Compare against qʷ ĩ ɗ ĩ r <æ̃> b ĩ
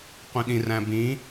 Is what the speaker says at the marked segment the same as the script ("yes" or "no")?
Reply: yes